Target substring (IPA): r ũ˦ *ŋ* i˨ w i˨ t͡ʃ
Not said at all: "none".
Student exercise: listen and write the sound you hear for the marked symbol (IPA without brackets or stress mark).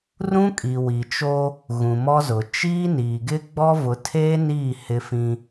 kʼ